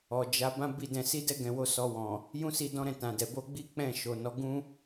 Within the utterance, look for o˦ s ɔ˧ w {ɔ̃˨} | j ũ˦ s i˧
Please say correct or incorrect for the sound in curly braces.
correct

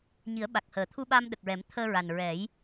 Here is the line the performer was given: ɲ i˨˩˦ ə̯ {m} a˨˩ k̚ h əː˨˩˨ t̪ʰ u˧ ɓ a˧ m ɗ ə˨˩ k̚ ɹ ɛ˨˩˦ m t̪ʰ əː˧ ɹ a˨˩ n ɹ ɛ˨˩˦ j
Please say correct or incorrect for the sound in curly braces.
incorrect: ɓ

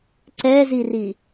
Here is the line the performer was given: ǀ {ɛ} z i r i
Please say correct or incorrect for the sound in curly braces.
correct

